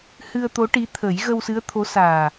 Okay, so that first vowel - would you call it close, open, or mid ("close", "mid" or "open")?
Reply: close